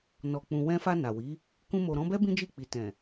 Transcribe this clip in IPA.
n ɔ˨ k͡p ũ˨ w ɛ̃˧ f a˧ n a˨ w i˨˦ | k ũ˧ m o˨ ɾ ɔ̃˨˦ b ɛ˦ b ĩ˦ d͡ʒ i˦˨ k͡p i˨ t ɛ̃˨

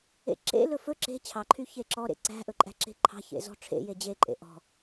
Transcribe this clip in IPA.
ḛ ǁ ḛ l ɵ f ɵ ǁ e̤ t͡ɕʰ ɑ ǃʰ y ç e ǁ ɔ ɾ ḛ ǀ æ̤ ʔ ɵ ǃʼ æ̤ ǁ e̤ ǃʰ ɑ̤ ç ḛ z ɔ̤ ʈ͡ʂʰ ḛ j e d͡ʑ e ǃʼ ḛ ʔ ɔ̤

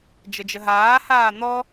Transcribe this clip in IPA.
d͡ʒ ə d͡ʒ ə ɦ aː h aː n̪ ɔ

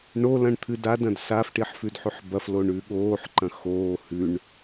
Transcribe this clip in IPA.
ɳ o l ɐ̃ ɳ t̪ʰ ɨ d a d ɐ̃ d s a f ʈ i ħ f ʉ d ħ ʉ ħ b ɐ f l o ɳ ʉ ɠ oː ħ ǃ ɐ̃ x oː h ʉ ɳ

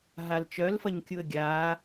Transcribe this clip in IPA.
ɦ a l t͡ʃ œ l f ɐ ɲ kʲ u ə̯ ɡʲ a

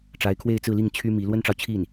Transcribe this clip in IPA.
ʈ͡ʂ a˧˥ ɪ̯ kʰ w e˥˧ ɪ̯ t͡s ɹ̩˥˧ l i˥˩ ŋ t͡ɕʰ y˥ m i˧˥ l w ə˥ n ʈ͡ʂ ɑ˨ ʊ̯ t͡ɕʰ i˥˩ n

